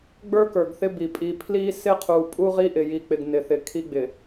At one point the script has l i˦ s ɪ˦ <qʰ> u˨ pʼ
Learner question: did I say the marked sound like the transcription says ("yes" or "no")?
yes